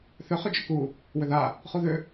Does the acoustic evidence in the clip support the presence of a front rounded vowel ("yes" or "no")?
yes